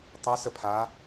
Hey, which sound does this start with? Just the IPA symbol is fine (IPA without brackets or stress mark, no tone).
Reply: tˤ